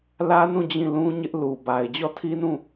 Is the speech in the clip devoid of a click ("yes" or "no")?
yes